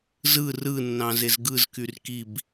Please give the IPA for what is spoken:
zɯ rɯnːɑ̃zez ɡɯzkyr kib

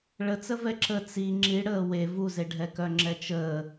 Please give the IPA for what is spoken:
ɭət͡sə vɛǁə t͡si ŋ͡ǁiɽəː we vuzeɖʱɛkœ ŋ͡ǁɛt͡ʃəː

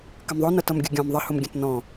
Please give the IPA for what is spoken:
kəmðˤʊ nʌtʌmɡʲʊɡʲɔ̃m ðˤɪ hʊmɡʲə̃tnɔ̃

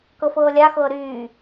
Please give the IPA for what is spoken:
kɤfɤːlʲaxɤː ɾyː

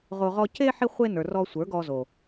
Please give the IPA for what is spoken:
ʁo˧ ʁɔ˧ ce˧ ħi˧χʷe˧nə˞˨ rɔ˧sʷə˞˨˦ɡɔ˧ zo˨

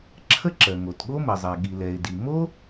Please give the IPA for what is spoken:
ǁʰə˦ǁɜ˩ŋo˩tɠo˦ mə˩zˤɛ˩ ɠi˩lɛ˩ɪ̯di˩ mo˥

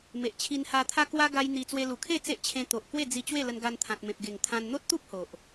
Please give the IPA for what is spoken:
me˨ʔt͡ɕʰi˧n ha˧t̪ʰa˦kwa˦ ɡa˦jn̪i˧ t͡swe˧lu˨˩kʰe˥˧ t͡se˦ʔt͡ɕʰẽ˧t̪o˨ʔ kwe˥˧ d͡zi˧ t͡ɕwe˥˧lə˧nɡa˧n t̪ʰã˨t̚mẽ˨p̚ ɡe˨˩ŋt̪ʰã˧n n̪o˦t̚t̪u˦p̚ ho˨ʔ

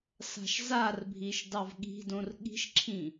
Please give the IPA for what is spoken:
sa̤ʃzarbʱiʃ dɑvɠi̤dõr ɠi̤ʃǁʰĩ

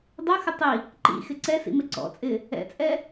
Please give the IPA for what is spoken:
dˤoxɪ tˤi | ǃḭ xɪǀɛsḭ mɪǀɔ̰t͡sʼɪ | ɛ̰t͡sʼɛ

